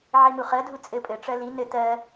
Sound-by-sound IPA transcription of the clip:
ʕimuχɜdʱu t͡sʼɘpʼɘʈ͡ʂɜ li nɘ tɜ

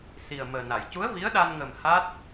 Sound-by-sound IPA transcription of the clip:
si˨˩ə̯məː˨˩na˨˩˨j cu˧˥ə̯vi˧˥ə̯ɗa˧nŋə˨˩m ha˦˥t̚

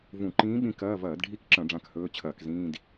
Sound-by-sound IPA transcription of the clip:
vũ˧˩˧ǃĩː˧˥ɓĩ˧˥ kɐː˧˥˧ vɐː˧˩˧dɖʱi˧˥˧kǁɐ̃˧˩˧ ɖ͡ʐã˦˨khɵː˧˥˧t͡ɕʰɐː˧˩˧k zĩː˧˥˧d

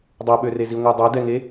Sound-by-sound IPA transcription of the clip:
dˤɛɓørezi ŋʷɛdˤɛdɛŋe

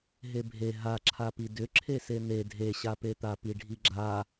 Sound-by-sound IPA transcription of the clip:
ɦebʱe ɦaǁʰapi dʏ ǁʰesen̪e dʱeɕapet̪a piɖʱiɡ͡ǁa

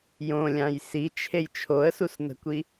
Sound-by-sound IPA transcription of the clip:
jõlʲãj sit͡ʃʰej t͡ʃʰoə̯susnə̤kʷi

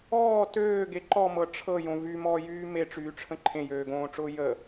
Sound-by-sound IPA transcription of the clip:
ɔː tøːɡe ǃɔmɤ ʈ͡ʂʰɤjõ vymɔːjyː meʈ͡ʂyːʈ͡ʂʰə̃ ǃʰẽjøːɡõːʈ͡ʂʊː jə

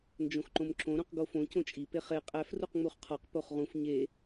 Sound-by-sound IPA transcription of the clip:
nd͡ʒõxǃõmǁõ ɾũqɡofõ cõt͡ʃʼi peχe qʼæf ruqŋ͡muχqʰɒq poχʁũf ɲe

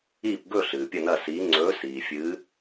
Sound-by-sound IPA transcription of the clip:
i˦˨pɡɵ˦˨ ɬɨː˩pʲɐ˦˨nɐ˦˨siː˨˦ ŋ͡ǀɵː˨˦siː˩fʲɨ˨˦

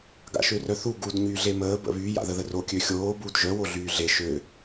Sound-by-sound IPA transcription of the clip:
ɡa̰ʃørœθu ɡud ɲyːɮeməː bə̰βy ja̰ðəðəro kʲøxʲoː buːdʒœ woɮyːɮe ʃø

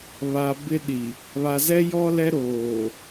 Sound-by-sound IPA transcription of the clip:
βa˨ bɪ˦ɗi˨ | βa˨zɛ˦ jɔ˦lɛ˦ɾoː˨

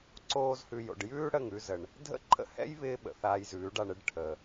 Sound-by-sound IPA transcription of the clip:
ǀoː˦zhʉ˧j o̰˨ɖjʉː˦ ɽə˦˨ŋʉ˧zə˨ɳ | dʱə̰˦ǃʰə̰˦hɛ̰˦jβɪː˧ ɓə̰˨θaː˧jzʉː˨˦ɖa˧ɳ ɪ˧ɖʈʰə˨

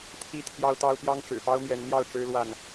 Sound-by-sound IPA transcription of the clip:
t̪ʰi˦ t̪ʰjɑ˦ʊ̯t̪ɑ˦ʊ̯ pjɑ˦ŋʈ͡ʂɻ̩˨˩pɑ˦ʊ̯ mjɛ˨˦nn̪jɑ˥˨ʊ̯ʈ͡ʂɻ̩˦ lwa˥˨n

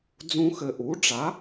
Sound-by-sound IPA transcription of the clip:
d͡zũ˧xɘ˨˩ ʔu˩˥ɖ͡ʐa˩˥

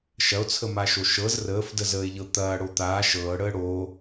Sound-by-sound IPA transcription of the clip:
ʃɐo̯t͡sʰəmaʃo ʃɤz rəːfdəzəːe̯ʎɤ t̪ɐːɽo t̪aː ʃɤːɽəː ɽoː

